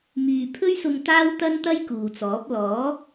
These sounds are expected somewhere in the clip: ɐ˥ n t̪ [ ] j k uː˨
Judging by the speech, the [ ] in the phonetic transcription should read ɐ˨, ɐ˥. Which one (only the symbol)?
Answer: ɐ˥